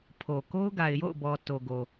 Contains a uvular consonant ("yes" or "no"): no